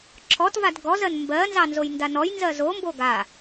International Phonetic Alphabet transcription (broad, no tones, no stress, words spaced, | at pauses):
ǁʰɔtvad ɡɔzɜn mbɜnzɑ nzojndanɔjnzɜ zombo ɡa